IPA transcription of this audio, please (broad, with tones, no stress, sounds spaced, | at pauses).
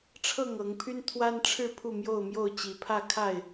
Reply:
ʈ͡ʂʰ ɤ˥˨ ŋ ɤ˨˦ ŋ pʰ y˦ n t̪ʰ w a˦ n ʈ͡ʂʰ ɻ̩˥˨ pʰ u˥˨ m j o˥˨ ʊ̯ m j o˥˨ ʊ̯ t͡ɕ i˨˩ pʰ ä˥˨ kʰ a˥˨ ɪ̯